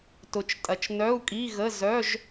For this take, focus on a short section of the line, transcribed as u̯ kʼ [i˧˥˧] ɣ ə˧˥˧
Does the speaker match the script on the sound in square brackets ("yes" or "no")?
yes